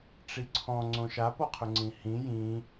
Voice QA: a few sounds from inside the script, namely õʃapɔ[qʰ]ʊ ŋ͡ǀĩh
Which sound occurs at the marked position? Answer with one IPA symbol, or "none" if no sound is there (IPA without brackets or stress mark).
qʰ